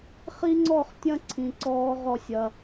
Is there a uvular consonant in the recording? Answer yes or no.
yes